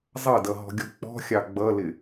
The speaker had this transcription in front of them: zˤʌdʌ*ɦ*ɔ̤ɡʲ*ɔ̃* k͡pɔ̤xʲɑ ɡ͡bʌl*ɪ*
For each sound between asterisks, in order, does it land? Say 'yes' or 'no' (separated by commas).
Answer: yes, no, yes